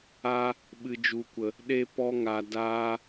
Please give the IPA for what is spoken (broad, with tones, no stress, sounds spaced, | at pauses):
a˧ | ɓ ɨ˨ d͡ʒ u˨ kʷ ə˨ | ɗ e˧ p ɔ˧ ŋ a˨ d aː˧